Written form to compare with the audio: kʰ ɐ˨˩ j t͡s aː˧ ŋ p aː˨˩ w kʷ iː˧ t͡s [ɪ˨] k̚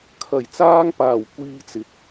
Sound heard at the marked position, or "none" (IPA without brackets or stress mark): ɪ˨